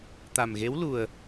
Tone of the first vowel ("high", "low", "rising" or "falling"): low